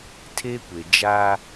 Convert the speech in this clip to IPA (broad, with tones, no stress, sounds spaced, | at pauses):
tʰ e˦ kʷ e˨ d͡ʒ a˦